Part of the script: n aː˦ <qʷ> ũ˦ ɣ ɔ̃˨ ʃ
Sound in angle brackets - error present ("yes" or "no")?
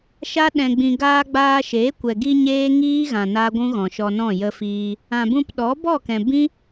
yes